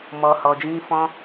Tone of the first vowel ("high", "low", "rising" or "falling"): low